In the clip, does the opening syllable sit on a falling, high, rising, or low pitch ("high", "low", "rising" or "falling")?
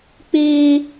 high